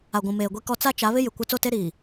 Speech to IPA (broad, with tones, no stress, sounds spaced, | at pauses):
a˨ ɡʷ ũ˨ m eː˨ ɡʷ i˦ k ɔ˦ t͡s a˦ t͡ʃ a˨˦ β ɪ˦ j ɪ˨ kʷ ɪ˦ t͡s o˦˨ t e˦ ɾ iː˨